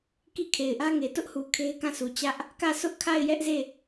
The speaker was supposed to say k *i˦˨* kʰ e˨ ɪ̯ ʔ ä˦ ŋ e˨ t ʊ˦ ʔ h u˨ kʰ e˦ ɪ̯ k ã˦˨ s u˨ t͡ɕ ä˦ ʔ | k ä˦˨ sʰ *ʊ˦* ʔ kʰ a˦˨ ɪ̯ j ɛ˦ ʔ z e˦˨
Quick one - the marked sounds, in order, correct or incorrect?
correct, correct

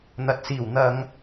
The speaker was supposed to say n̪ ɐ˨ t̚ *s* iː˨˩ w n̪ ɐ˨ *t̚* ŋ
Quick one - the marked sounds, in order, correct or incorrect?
correct, incorrect: none

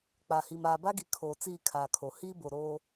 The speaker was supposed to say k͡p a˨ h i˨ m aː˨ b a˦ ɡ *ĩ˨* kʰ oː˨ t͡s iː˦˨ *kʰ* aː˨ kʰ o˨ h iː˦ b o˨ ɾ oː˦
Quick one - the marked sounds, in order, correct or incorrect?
incorrect: i˨, correct

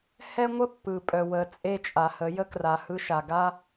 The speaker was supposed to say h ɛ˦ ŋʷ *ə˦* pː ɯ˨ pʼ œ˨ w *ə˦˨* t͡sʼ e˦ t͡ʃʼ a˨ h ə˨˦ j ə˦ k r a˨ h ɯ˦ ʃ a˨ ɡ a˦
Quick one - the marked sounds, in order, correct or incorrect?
correct, incorrect: ə˨

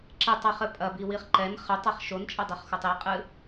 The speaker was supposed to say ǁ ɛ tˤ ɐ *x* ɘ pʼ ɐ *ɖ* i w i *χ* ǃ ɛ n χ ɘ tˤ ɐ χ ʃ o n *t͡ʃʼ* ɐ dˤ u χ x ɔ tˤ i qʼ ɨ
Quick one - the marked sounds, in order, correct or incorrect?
incorrect: χ, incorrect: b, correct, correct

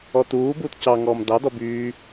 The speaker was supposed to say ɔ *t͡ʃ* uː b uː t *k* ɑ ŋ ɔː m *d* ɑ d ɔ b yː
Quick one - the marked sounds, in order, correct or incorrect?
incorrect: t, incorrect: c, correct

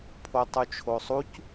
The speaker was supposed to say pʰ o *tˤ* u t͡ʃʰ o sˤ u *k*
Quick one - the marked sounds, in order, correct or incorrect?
correct, incorrect: c

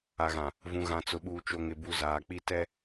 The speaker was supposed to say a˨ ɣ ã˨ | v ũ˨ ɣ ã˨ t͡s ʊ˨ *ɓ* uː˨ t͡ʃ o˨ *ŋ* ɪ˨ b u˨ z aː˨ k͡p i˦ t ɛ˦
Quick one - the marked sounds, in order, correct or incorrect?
correct, correct

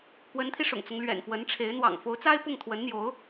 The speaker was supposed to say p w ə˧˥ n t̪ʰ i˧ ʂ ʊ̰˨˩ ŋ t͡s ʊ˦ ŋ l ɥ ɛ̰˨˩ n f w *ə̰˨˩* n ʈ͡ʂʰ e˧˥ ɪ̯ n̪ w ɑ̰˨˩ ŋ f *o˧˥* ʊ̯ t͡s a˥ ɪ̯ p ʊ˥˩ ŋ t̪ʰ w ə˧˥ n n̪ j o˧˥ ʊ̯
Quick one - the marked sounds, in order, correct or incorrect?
incorrect: ə˧˥, correct

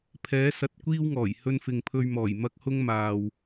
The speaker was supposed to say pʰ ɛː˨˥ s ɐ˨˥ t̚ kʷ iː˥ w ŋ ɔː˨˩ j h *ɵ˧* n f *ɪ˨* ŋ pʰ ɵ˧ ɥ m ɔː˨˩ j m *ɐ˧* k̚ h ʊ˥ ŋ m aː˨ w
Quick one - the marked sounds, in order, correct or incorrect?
correct, correct, incorrect: ɐ˥

